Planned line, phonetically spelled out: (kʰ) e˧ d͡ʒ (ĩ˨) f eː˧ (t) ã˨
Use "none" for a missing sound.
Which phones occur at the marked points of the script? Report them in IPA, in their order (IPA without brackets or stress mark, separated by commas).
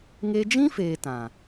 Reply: ŋ, ĩ˦, t